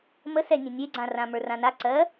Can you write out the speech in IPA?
mə sɛnʲɛ̃ nʲeɡ͡ǀãrã mə˞rãna ǀɜ

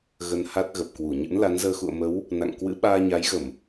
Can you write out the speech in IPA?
ɣə˧nha˦˥t̚ ɣə˨˩p̚kwu˧˩ ɲɨ̰˧˥nla˨˦nzəː˧ xṵ˧˨ə̯mə˨˦w | na̰˧˨ŋkwɨ̰˧˥ ɓaː˧ɲa˨˦jɣə˧˩˨m

